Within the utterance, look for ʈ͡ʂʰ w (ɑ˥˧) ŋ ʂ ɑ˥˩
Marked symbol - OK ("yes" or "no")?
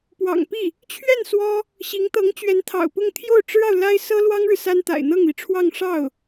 yes